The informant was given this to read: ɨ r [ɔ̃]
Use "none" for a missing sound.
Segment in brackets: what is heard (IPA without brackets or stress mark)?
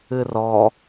ɔ